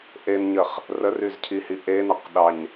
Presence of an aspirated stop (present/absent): present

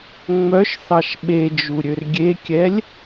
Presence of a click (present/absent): absent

